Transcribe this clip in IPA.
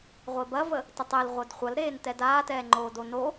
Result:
ʁʷ e b ɐ v ə | t ə tˤ e l ʁʷ œ d χʷ ɐ l ɾ eː n t ɛ d aː t ɛː ŋ͡ǃ oː d o n o

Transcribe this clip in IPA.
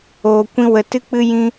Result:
oː˧ kʷ ĩ˦ w ə˧ t ɨ˦ k͡p ɨ˦ j ĩ˦

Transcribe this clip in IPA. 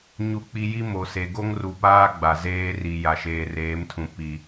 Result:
ɲ u˦ k͡p i˦ j i˦ m o˨ s e˨ ɡ o˦ ŋ r u˨ p aː˦ ɡ͡b a˨ z eː˦ r i˨ j a˨ ʃ eː˨ r eː˨˦ m tʰ ũ˨ p i˨

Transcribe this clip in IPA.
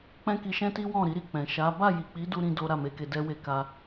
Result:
k͡p ɛ̃˦ k i˧ ʃ ɛ̃˦ t i˦ w ɔ̃˦˨ ɾ i˨˦ ɾ i˦˨ k͡p ɛ̃˨ ʃ a˨˦ b a˦˨ j i˨ k͡p i˨˦ d u˧ ɾ ĩ˦ d o˦ ɾ a˦˨ m e˧ k e˧ d ɛ˦ w e˦˨ k a˧

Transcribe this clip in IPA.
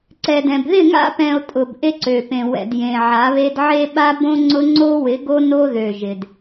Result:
ǀ ɛ˨ d ɛ̃˨ b ð ɪ˦˨ ŋ a̰˦ p ɛ̃˨ o̯ tʼ ʊ˨ b ʔ e˦ ǀ ø˨ p ẽ˨ w ɛ̰˨ d j ẽ˨ ʕ a˨˦ β e˦ d ʕ e˦ ɓ a˦ b õ˦ ŋ͡ǀ ʊ˦ ŋ͡ǀ o˦ w ɪ˨˦ ɡ o˦ n o˦ ð ø˨ ʒ ɪ˨ d

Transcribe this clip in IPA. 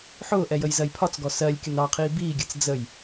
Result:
ħ ʊː ʔ ɛ j ə j z ɜ j pʰ ɒ t͡s ɡ ɔ s ɜ lʲ kʲ ʊ n ɑ qʰ iː b iː ɡʲ ɜ t͡s d͡z ə j

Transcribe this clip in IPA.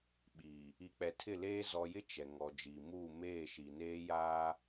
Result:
ɓ iː˨ | i˨ k͡p ɛ˨ tʰ ɪ˦˨ l eː˦ z ɔ˨ j ɪ˦ t͡ʃ ɛ˨ ŋ ɔ˨ d͡ʒ iː˨ m uː˦˨ m eː˦˨ ʃ i˨ n eː˦ j aː˦

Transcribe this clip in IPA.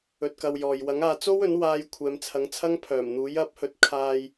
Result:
ɵ˧ t̚ k ɐ˧ w j ɔː˨ j w ɐ˨˥ ŋ aː˨˧ t͡s o˥ w ɵ˨˥ n w aː˧ j kʷʰ ɛː˨˧ m t͡sʰ ɐ˨˥ ŋ t͡sʰ ɐ˥ ŋ pʰ œː˨˩ m n̪ uː˨˥ j ɐ˨˥ p̚ h ɵ˨˥ t̚ kʰ aː˧ j

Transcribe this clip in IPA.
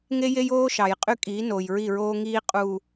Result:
ŋ e˦ j e˦ j oː˦ ʃ ɑ˨ j qʼ y˦ kʼ iː˨˦ n oː˨ j ɹ i˦˨ ɹ oː˦ ŋ iː˦ qʼ u˨

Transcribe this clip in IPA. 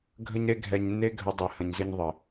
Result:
ɡʱ ə˥ ɲ ɾ e˥ ɡʱ ɛ˧ ɲ nː e˥ ɡʱ ə˧ dˤ e˧ h ə̃˧ ɲ z ɘ˥ ɲ ðˤ ɘ˩

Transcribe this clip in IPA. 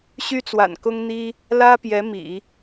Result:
ɕ y˥ t͡s w a̰˨˩ n k ʊ˥ ŋ n̪ i˥ | l ä˥ p j ɛ˧˥ m ḭ˨˩˦

